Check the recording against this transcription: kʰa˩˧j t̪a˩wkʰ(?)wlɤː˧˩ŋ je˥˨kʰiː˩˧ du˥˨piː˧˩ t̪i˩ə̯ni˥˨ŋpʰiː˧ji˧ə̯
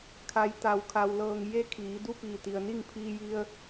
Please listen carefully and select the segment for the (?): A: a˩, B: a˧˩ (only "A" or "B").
A